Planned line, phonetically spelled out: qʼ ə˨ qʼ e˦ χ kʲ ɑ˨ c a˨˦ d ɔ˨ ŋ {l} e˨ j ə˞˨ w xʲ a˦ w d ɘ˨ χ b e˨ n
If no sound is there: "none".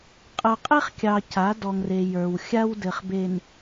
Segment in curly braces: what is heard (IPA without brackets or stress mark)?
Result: r